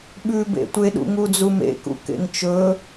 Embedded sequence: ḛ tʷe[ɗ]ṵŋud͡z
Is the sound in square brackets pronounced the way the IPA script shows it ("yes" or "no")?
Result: yes